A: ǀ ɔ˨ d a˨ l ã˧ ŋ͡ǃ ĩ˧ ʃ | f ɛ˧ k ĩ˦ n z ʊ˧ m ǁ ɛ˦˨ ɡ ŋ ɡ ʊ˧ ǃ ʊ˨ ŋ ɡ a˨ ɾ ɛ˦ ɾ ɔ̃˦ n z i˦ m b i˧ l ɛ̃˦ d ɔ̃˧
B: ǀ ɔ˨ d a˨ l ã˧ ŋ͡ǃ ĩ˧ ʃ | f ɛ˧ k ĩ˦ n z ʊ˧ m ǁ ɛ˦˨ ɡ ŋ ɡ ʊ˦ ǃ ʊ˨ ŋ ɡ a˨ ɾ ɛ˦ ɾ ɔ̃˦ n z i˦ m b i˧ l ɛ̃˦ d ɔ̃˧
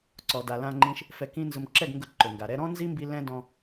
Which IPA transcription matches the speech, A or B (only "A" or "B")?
A